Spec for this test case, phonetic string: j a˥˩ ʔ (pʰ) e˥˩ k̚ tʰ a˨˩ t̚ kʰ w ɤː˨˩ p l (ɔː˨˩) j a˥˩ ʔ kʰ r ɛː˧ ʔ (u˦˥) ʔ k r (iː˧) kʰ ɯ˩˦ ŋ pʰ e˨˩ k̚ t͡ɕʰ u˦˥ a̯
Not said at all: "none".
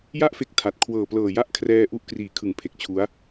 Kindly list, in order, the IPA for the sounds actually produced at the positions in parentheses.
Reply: f, ɤː˨˩, u˦˥, iː˩˦

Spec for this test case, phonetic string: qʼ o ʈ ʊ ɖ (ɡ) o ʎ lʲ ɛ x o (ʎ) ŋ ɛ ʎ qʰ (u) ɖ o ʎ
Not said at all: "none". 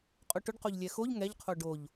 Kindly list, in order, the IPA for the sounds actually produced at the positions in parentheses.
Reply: q, ʎ, o

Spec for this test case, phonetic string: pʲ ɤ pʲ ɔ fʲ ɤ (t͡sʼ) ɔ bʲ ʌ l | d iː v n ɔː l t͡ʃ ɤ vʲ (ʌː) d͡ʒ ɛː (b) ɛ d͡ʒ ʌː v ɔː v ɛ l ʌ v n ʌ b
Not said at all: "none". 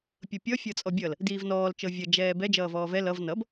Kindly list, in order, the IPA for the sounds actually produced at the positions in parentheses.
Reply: t͡sʼ, ʌ, b

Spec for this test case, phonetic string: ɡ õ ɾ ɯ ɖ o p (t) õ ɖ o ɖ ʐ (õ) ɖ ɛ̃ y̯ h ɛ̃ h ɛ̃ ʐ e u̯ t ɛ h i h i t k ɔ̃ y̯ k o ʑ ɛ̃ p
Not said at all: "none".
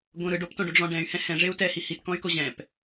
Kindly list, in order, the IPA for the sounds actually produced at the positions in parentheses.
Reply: t, ɔ̃

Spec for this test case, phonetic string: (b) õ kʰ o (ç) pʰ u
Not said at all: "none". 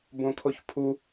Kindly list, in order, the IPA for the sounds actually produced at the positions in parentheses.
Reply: b, ç

